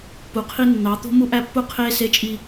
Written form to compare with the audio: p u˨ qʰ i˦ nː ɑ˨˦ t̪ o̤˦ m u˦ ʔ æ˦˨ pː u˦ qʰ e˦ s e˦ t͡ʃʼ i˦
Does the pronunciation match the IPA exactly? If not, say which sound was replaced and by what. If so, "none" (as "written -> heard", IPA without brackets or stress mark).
none